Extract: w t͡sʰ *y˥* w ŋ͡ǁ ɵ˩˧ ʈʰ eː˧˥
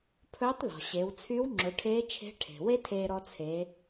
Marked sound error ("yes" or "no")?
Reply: yes